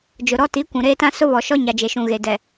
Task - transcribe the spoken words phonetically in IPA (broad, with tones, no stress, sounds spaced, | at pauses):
d͡ʒ ʊ˨ ɾ ɔ˦ t i˨˦ kʷ ũ˨ ɾ eː˦ t ã˦ s ʊ˦ β ɔ˨ ʃ ɔ˦ ɲ a˨ d͡ʒ e˨ ʃ ũ˨ ɣ e˨ d ɛ˨